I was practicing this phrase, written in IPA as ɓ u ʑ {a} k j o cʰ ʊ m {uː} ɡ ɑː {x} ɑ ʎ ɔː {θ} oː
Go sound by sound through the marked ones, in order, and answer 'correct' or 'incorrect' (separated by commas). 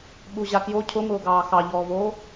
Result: correct, incorrect, correct, incorrect